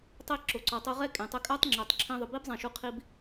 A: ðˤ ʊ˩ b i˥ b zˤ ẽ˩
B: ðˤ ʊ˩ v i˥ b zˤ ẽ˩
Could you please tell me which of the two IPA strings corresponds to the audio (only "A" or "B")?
A